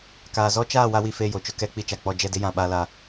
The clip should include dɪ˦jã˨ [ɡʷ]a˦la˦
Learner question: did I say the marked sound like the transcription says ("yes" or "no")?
no